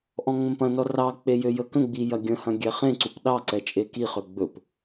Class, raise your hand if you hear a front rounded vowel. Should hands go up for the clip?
yes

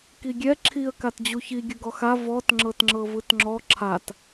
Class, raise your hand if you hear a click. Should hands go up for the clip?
yes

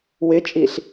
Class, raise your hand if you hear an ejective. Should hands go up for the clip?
yes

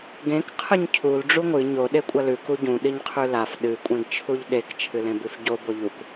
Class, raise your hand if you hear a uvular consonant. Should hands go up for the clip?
yes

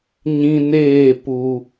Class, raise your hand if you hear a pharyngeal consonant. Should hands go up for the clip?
no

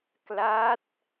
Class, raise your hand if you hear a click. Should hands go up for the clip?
no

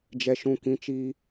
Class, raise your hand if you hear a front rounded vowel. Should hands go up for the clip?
no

